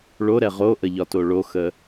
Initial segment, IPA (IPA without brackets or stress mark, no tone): ɭ